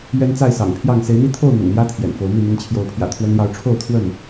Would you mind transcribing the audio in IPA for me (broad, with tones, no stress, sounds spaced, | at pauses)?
ɥ ɛ˦ n t͡s a˥˨ ɪ̯ s ɑ̰˨˩ ŋ pʰ j ɑ˥˨ ŋ s e˨˦ ɪ̯ n̪ i˦ t̪ʰ o˥˨ ʊ̯ n̪ ʊ̰˨˩ ŋ n̪ j ä˦ t̪ʰ j ɛ̰˨˩ n f o˨˦ ʊ̯ m i˥˨ n̪ i˨˦ ŋ t͡ɕʰ j o˨˦ ʊ̯ pʰ j ä̰˨˩ t̪ʰ w ə˦ n l j ɑ˦ ʊ̯ ʈ͡ʂʰ o˥˨ ʊ̯ t̪ʰ w ə˥˨ n